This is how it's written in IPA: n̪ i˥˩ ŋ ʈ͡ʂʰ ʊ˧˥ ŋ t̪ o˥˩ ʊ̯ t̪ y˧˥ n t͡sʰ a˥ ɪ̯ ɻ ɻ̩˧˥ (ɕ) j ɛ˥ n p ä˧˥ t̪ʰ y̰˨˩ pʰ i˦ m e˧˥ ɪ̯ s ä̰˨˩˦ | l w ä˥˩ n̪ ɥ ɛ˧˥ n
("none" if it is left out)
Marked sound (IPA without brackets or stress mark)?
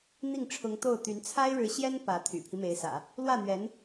ɕ